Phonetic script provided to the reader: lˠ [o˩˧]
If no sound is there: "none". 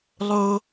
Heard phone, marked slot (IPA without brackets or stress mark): o˧